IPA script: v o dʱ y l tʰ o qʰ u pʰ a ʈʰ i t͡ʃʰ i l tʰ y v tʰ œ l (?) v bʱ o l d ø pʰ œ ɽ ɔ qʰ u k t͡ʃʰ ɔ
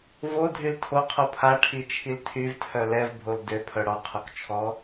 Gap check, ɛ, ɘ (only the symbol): ɛ